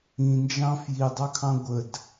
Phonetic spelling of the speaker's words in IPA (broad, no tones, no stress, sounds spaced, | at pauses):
ĩ n d͡ʒ ɑ̃ f j i dˤ ɑ kʰ ɑ̃ ɡʷ ə d